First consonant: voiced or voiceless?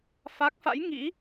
voiceless